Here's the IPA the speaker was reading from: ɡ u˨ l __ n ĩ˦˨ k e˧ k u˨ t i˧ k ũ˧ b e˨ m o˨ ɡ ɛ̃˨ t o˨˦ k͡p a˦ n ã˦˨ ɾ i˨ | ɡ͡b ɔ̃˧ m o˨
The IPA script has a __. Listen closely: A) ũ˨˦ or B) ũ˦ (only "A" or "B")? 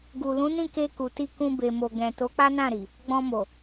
A